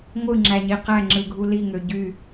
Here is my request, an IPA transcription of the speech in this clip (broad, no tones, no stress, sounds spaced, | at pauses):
ŋʷ ɯ ŋ͡ǁ æ ɲ i q æ ŋ͡ǁ ɯ ɡʱ u l i ŋ ø ɟ y